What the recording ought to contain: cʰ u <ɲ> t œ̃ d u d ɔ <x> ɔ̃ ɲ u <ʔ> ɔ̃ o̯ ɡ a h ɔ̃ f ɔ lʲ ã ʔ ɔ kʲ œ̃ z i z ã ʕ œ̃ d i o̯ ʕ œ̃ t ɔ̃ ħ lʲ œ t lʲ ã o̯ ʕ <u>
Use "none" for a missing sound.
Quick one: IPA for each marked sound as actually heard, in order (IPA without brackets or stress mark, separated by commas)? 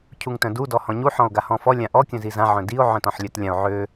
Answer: ŋ, h, ħ, ø